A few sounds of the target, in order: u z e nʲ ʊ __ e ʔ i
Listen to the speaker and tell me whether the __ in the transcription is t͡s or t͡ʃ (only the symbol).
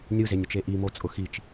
t͡ʃ